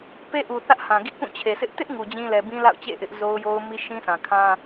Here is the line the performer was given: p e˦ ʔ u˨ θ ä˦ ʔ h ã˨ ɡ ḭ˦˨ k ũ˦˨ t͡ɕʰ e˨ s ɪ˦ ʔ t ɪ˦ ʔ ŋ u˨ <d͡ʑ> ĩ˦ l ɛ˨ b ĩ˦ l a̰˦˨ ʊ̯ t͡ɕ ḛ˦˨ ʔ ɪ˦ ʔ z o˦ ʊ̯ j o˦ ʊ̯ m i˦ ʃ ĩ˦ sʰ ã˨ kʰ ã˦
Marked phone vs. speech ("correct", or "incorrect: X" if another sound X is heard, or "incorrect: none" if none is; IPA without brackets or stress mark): correct